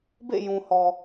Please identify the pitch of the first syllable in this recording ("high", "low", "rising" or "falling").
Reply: falling